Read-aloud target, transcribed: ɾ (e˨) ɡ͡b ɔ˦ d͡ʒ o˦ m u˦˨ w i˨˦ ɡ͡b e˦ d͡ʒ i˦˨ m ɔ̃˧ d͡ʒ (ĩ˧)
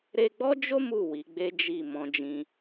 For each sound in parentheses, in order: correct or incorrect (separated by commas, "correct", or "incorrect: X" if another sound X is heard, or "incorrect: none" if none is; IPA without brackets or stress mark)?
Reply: incorrect: e˧, correct